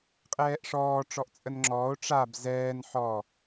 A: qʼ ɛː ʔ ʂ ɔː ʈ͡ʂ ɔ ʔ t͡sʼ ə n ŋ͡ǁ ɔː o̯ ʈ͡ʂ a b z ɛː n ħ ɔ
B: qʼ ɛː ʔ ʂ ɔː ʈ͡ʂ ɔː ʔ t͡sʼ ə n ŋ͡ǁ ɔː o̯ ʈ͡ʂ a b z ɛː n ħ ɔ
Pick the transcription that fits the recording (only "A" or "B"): A